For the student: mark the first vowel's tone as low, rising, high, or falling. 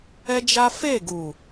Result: high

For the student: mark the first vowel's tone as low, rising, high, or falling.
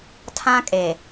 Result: high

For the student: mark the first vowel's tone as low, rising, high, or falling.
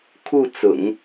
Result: falling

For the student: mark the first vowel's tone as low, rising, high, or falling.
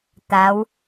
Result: rising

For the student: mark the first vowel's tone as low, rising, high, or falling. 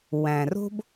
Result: low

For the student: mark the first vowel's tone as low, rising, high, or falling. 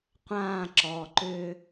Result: falling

